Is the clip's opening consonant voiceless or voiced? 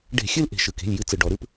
voiced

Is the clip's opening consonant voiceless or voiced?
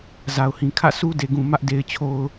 voiced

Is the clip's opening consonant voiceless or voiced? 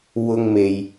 voiced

